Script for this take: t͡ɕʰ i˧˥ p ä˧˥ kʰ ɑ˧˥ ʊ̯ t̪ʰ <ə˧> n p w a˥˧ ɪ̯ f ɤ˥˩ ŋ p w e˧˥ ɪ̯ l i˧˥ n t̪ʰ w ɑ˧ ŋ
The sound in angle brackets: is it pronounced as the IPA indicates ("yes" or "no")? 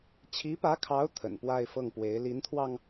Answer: no